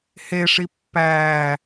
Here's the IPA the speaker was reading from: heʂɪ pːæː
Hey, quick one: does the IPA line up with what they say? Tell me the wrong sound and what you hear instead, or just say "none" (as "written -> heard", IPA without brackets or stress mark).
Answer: ɪ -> i